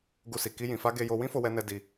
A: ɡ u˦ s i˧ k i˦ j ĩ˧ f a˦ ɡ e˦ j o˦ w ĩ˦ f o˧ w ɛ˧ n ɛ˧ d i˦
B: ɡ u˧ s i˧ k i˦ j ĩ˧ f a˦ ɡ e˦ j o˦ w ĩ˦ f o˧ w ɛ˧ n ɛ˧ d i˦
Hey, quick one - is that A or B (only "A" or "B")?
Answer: A